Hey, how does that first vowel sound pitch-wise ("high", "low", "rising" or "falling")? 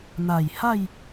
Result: low